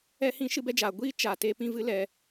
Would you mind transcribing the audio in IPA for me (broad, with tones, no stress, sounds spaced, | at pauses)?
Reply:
ɛ˦ h ĩ˦ ʃ ɨ˦ b ɛ˦ d͡ʒ aː˨ ɡʷ iː˦ t͡ʃ a˨ t eː˧ p ĩ˦˨ v ɨ˦ l ɛ˧